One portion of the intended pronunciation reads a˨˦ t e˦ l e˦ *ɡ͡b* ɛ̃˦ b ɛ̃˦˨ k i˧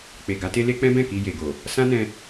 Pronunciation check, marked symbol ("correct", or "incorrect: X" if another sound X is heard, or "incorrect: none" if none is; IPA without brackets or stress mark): incorrect: k͡p